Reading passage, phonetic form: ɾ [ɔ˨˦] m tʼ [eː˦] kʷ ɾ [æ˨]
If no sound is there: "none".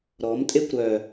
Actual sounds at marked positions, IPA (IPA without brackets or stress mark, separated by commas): ɔ˨˦, e˦, œ˨